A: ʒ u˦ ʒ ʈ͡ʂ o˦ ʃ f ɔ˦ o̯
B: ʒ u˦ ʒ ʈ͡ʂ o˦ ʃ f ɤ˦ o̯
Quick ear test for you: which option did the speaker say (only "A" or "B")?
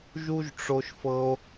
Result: B